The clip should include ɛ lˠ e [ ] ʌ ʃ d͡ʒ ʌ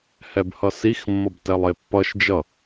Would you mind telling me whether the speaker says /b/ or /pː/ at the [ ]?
pː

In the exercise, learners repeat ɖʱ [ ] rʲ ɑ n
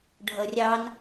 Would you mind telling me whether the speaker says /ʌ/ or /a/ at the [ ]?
ʌ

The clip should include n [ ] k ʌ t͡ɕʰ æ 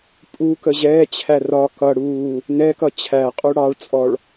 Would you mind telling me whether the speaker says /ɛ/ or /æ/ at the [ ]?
ɛ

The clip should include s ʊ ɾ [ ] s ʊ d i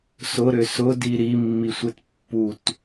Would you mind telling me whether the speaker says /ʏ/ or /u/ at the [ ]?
ʏ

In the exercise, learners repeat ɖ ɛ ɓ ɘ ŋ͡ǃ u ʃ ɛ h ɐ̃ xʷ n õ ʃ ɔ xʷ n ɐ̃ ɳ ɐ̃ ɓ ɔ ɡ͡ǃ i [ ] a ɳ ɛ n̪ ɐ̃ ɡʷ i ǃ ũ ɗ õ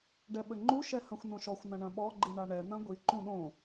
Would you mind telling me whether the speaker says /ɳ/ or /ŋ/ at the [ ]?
ɳ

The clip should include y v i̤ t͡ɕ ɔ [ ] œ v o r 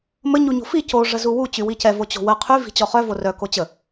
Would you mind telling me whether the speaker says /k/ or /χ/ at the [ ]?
χ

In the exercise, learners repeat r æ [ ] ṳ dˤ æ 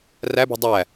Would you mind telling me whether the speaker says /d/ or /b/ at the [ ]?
b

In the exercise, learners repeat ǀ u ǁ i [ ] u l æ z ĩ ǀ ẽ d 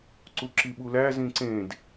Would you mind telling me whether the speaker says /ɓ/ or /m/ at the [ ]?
ɓ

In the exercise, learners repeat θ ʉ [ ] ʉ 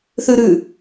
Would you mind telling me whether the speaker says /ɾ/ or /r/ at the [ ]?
ɾ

